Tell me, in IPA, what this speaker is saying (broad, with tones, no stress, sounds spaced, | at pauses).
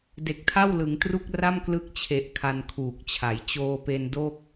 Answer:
d e˨˩ k̚ tʰ a˥˩ w l ɯ˩˦ ŋ t r u˥˩ k̚ r a˥˩ m k l ɯ˦˥ k̚ t͡ɕʰ e˨˩ ʔ kʰ a˧ n kʰ uː˨˩ k̚ t͡ɕʰ a˩˦ j t͡ɕ oː˧ p e˧ n d o˥˩ k̚